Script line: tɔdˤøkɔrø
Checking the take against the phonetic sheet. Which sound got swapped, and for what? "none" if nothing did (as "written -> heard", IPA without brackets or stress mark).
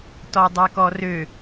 none